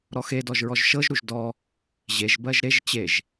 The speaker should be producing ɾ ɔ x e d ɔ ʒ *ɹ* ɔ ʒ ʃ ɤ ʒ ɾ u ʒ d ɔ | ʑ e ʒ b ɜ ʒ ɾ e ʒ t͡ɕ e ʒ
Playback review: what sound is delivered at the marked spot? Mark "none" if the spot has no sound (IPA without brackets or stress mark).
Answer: ɹ